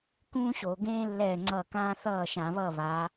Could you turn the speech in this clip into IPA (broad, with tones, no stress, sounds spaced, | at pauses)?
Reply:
k ũː˥ ɕ o˧˩˧ ɡ ẽː˥ lː ɛː˥˩ ŋ͡ǀ ʌ˥˩ k ãː˥ θ ʌː˥˩ ʃ ã˧˩˧ β ʌ˥˩ β a˨˦